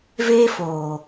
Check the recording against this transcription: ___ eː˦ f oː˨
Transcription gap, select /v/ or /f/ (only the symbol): v